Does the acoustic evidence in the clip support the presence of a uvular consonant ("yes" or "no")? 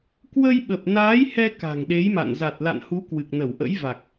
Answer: no